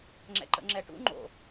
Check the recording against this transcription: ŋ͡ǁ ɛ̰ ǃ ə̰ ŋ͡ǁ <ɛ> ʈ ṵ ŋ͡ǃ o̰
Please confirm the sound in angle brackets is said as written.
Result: yes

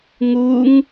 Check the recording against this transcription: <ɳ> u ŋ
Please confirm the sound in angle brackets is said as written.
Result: no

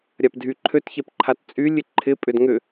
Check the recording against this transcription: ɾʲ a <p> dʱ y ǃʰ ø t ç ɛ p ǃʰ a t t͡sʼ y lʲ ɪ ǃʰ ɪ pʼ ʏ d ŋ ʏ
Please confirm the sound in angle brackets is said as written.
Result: yes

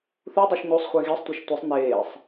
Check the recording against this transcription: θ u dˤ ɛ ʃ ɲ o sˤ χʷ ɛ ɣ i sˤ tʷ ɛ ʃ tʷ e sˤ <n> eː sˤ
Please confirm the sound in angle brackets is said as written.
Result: yes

